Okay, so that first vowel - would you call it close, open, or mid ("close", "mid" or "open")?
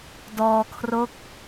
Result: mid